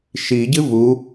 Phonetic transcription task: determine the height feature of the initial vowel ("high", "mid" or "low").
high